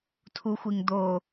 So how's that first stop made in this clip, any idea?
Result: aspirated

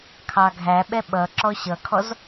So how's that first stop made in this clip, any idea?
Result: aspirated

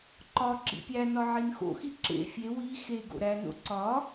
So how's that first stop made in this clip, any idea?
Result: click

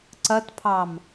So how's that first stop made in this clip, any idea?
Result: click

